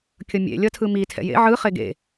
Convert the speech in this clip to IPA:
kʲ ʌ mʲ ḛ lʲ ʌ tʰ ɯ m i tʰ ɛ̰ j ḛ ʕ ɯ χ e ɡ ḛ

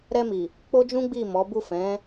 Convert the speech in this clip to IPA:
ɾ ɛ˧ m i˨ | k͡p o˦ d͡ʒ ũ˦ ɡ͡b i˦˨ m ɔ˨˦ b u˦˨ f ɛ̃˨˦

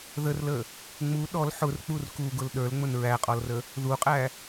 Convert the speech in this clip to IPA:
ð ə r l ə | ŋ͡m u ɗ ɔ l ħ ʊ r k͡p u r k u ɡ ʊ l ɗ ə˞ l ŋ͡m ʊ n ɹ æ qʼ ɔ l r ə | ð u qʼ æ

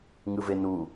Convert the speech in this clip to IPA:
ŋ ɯ v e n u

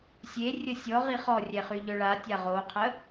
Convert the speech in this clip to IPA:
sʲ e rʲ ə sʲ ɔ ʁ i χ ɔ rʲ ɛ χ y ʎ œ ɭ a tʲ a ʁ o qʰ ə

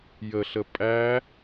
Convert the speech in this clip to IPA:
j ə ɬ ə pʼ æ

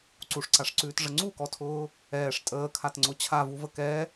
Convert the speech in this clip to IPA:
ǀ u ʂ ǀ a ʂ ǀ ʉː t ʐ ə ŋ͡ǀ u k ɔ tʰ ʊː | ɛː ʂ tʼ əː kʰ a t ŋ͡ǀ ʊ t͡ɕʰ a v u v ə k ɛ

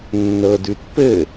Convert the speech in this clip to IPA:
nː ɤ d ʉ t p ɘ

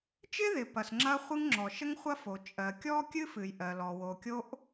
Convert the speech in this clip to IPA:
t͡ʃ ɪ˥ ð ɪ˩ p ɐ˩ s ŋ͡ǁ ɐ˥ χʷ ɨ˥ ŋ ŋ͡ǁ ɔ˩ ʃ ə˥ ŋ χʷ ɐ˥ f o˩ t͡ʃʼ ɜ˩ kʲ ɔ˥ kʲ ɨ˥ f ɨ˩ j ʔ ɜ˩ l ɔ˩ w o˩ kʲ o˥ ʔ

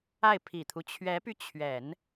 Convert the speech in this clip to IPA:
a˥˩ ɪ̯ pʰ i˨˩ t̪ʰ u˦ t͡ɕʰ ɥ ɛ˧˥ p y˧ t͡ɕʰ ɥ ɛ˨˩˦ n

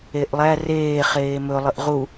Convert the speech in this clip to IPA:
e ʔ lˠ æ r eː χ eː m ɵ lˠ ə ʔ ʁ u

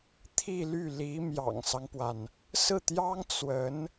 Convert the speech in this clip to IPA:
t̪ʰ i˥˧ l y˥˩ l i˧˥ m j ɑ̰˨˩ ŋ s ɑ˦ ŋ p w a˩ n | s ɹ̩˥˩ t̪ j ɑ˥ ŋ t͡s w ə˧˥ n

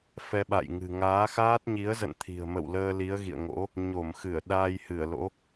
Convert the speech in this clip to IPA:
f ɛ˧ ɓ a̰˧˨ j ŋ ɨ̤˨˩ ŋ aː˨˦ x aː˦˥ t̚ ɲ i˨˦ ə̯ z ə̰˧˨ n t̪ʰ i̤˨˩ ə̯ m ə̰˧˨ w l əː˧ l i˨˦ ə̯ ɣ ḭ˧˨ ə̯ ŋ o̰˧˥ | ɲ o˧˩ m x ɨ˧˩ ə̯ ɗ aː˧ j h ɨ˧˩ ə̯ l o̰˧˥

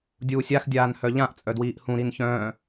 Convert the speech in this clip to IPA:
dʲ uː sʲ a x dʲ aː n h œ ʎ ã ʔ t͡sʼ œ d w iː ʔ h ũ ɾ i n ç œ̃ː

